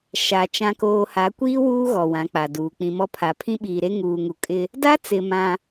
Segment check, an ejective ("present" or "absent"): present